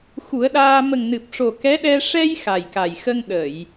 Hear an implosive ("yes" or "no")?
yes